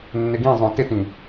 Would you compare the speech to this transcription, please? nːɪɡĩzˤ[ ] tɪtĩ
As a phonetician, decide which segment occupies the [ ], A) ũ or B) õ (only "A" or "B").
B